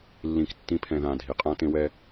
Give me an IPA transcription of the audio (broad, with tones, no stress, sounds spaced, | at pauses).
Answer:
lː ĩ˨ k tː ĩ˨˦ pʰ ɛ̃˨ ð ã˨ dʱ i˨ qʼ ã˧ t ẽ˧ w ɛ˧